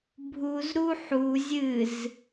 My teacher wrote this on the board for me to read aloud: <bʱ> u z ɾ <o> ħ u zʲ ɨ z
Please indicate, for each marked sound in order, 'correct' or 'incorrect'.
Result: correct, incorrect: u

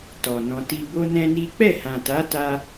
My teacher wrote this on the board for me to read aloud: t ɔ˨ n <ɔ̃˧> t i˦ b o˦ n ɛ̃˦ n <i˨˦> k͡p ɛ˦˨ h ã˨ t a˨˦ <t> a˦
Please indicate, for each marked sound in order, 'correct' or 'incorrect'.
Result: correct, incorrect: i˦, correct

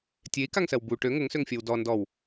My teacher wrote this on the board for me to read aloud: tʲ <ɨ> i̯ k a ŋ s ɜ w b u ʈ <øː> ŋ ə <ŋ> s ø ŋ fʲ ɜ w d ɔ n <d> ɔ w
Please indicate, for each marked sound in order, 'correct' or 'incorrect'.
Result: incorrect: e, incorrect: ø, correct, correct

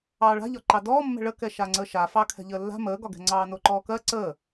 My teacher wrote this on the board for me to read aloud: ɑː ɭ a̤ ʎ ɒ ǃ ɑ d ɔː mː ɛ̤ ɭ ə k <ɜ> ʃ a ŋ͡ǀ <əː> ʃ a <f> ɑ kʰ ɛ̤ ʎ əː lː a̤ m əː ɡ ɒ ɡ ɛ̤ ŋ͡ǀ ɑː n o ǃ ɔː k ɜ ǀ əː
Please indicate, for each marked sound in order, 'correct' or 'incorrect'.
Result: incorrect: ɛ, correct, correct

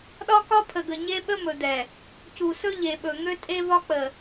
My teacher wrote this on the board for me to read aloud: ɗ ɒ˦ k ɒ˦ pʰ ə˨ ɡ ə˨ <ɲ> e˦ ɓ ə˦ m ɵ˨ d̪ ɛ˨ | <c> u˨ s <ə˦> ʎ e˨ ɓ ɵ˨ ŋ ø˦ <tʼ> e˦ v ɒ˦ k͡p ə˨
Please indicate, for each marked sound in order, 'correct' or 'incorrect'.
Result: correct, correct, incorrect: ɵ˦, correct

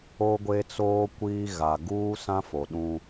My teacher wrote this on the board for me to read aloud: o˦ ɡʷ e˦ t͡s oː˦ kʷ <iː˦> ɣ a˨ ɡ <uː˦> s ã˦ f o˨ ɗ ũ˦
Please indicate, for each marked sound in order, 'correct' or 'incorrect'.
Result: correct, correct

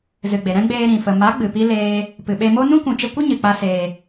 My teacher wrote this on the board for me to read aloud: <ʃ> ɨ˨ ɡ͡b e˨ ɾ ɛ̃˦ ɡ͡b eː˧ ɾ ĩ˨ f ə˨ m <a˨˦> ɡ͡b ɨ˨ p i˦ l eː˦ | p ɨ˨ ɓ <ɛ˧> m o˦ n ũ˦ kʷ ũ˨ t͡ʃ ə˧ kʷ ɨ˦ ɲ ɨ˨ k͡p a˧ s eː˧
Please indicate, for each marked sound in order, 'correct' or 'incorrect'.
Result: incorrect: z, correct, incorrect: e˧

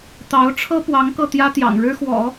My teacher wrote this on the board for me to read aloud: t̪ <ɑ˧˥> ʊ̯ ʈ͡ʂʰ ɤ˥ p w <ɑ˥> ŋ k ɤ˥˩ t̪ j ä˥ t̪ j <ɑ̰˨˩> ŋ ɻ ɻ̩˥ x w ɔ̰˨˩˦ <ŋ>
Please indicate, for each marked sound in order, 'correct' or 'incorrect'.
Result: correct, incorrect: ɑ˧˥, correct, incorrect: none

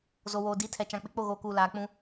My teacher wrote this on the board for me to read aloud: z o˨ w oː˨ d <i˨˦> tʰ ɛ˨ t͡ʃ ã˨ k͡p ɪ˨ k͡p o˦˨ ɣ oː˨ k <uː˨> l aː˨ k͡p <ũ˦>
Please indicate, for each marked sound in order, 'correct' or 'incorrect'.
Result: correct, correct, correct

